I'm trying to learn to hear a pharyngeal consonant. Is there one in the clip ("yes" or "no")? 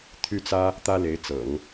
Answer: no